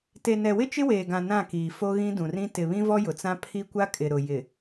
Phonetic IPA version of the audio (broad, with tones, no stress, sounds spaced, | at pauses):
t e˨ n ɛ˨ w ɪ˦ t͡ʃ ɪ˦ w eː˨ ɡ ã˨ n ã˦˨ k iː˨ f o˦ ɣ ĩ˦ d ũ˨ r ĩ˦ t ɪ˨ β ĩ˦ v ɔ˦ j ʊ˨ t͡s ã˦ pʰ i˦ kʷ a˦ kʼ ɪ˨ ɾ ʊ˨ j ɪ˨